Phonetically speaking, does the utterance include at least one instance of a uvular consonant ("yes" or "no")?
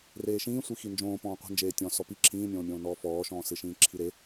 yes